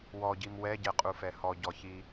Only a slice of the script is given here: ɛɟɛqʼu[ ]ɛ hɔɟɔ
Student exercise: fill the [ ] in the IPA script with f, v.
f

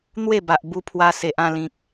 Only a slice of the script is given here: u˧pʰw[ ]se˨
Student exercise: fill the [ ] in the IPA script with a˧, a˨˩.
a˧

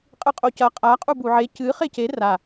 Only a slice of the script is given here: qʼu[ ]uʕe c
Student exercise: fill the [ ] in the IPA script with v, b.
b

